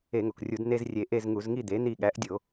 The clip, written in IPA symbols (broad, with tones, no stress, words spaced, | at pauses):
e˧˩˧ŋo˩krʲu˧˩˧d ne˧z rʲe˧ʔe˥˧z ŋu˧˩˧zŋi˥˧d̪e˩˥ n̪i˧˩ɠæ˩˥ʔdʲo˧˩˧